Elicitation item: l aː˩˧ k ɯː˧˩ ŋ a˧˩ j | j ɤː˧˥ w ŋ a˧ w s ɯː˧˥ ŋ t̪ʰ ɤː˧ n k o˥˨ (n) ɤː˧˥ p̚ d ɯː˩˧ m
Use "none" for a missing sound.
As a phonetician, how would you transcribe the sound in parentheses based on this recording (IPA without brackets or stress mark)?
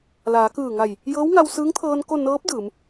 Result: n